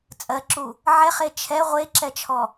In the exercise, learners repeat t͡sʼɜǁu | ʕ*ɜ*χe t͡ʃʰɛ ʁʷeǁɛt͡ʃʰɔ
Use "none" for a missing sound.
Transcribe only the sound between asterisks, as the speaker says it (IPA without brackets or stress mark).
ɛ